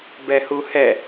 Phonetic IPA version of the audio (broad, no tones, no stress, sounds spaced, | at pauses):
b ɛ h u h ɛ